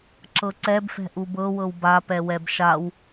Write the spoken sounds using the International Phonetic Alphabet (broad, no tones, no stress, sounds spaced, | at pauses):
ǁ ɤ ǀ ɛ b f ɛ̤ ʔ u b ɤ w ɤ w b a p ɛ w ɛ b ʃ a w